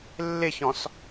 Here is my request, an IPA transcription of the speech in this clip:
lː ɪ ç ɔ̃ s

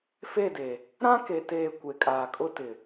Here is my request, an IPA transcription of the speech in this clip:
f e˦˨ d e˨ | ɾ ã˦ k e˨ t eː˨ kʷ e˨ kʼ aː˨ kʼ ʊ˦ t ɪ˨

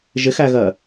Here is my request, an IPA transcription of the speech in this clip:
ʒ ɪ x æ ɣ ɜ

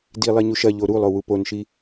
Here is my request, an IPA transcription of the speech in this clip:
d i lˠ i ɲ u ʃ ɐ ʎ o ɾ u lˠ o w u p o n ʃ i

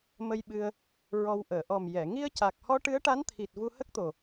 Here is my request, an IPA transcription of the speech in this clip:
m ə˧ j ɓ ɨ˧ ə̯ | ɹ ɔ˧ w ʔ əː˨˩˨ ʔ ɔ˨˩ m j ɛ˨˩˨ ŋ i˧ ə̯ c a˨˩ k̚ h ɔ˧ ʈ ɨ˧˥ ə̯ ʈ a˧˥ n t̪ʰ i˨˩ t̚ v u˧ h ə˦˥ k̚ t̪ o˨˩

